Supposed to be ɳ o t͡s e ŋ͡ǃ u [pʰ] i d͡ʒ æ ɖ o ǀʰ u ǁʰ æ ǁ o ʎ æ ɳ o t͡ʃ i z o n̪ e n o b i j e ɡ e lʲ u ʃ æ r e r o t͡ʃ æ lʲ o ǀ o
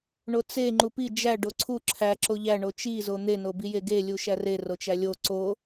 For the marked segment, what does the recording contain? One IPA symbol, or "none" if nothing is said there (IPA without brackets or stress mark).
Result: p